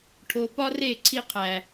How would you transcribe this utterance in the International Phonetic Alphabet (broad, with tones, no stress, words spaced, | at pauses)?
ʈʰo˨pɒ˦re˦˨ ǀʰi˦qʰæ˨